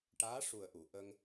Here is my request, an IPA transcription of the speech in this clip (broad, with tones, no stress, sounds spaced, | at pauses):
ʈ aː˧˥ ʂ u˨˩ ə̯ ʔ u˨˩˨ ʔ ə˧ ŋ